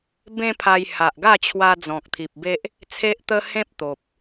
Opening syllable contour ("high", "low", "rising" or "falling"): high